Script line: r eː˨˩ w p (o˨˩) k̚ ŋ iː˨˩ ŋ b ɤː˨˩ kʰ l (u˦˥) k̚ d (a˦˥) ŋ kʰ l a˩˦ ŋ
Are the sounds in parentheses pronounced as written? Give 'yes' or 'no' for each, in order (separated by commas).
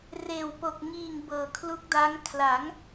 yes, yes, yes